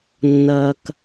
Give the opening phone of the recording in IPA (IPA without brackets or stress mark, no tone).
nː